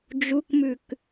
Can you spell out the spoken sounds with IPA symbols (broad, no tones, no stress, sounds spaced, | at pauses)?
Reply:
d͡ʒ u k m ʉ k